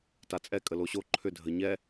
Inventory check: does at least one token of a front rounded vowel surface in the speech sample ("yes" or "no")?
yes